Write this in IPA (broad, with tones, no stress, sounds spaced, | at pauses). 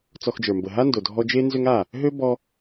t͡s ɔ˧ x d͡ʒ ə˞˨ m b ə˨ ɦ a˦ n d o˨ dʱ ɔ˧ d͡ʒ e˦ n z ø˦ ŋ a˦˨ | ɦ ø˦ b ɔ˧